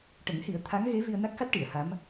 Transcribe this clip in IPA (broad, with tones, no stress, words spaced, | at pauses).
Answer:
ʈə˨˩˦ŋhi˨˩˦ə̯ t̪ʰa˧˥ŋɣe˧˥ vi˧ə̯na˦˥k̚xa˦˥t̚ ʈi˨˩˨ə̯ha˧˥m